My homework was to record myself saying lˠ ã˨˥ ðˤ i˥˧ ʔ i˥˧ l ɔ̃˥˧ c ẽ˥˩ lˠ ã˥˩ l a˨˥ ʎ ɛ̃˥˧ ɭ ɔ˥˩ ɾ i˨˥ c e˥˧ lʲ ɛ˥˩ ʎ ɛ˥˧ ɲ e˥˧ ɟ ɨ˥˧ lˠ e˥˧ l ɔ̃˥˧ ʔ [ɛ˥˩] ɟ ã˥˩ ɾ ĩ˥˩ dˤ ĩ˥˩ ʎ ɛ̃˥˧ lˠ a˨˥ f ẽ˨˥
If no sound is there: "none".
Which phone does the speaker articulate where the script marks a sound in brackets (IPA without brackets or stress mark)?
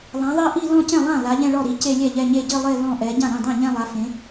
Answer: ɛ˨˥